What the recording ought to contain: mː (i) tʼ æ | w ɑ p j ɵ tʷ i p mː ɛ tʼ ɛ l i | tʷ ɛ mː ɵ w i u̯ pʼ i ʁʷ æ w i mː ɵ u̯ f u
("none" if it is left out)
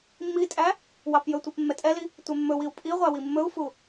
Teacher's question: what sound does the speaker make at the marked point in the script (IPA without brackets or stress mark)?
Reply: i